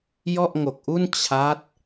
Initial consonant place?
palatal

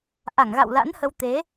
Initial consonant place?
glottal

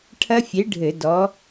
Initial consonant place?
retroflex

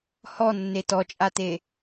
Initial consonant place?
glottal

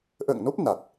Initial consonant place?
glottal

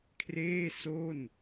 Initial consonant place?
velar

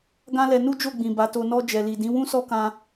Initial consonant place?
velar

